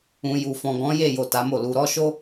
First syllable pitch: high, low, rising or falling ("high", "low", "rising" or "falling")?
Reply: low